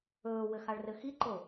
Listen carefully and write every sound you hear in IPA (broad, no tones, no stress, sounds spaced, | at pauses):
ɵː w ɘ x a ɭ r ɘ x i ǃ o